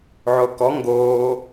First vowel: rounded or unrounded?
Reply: rounded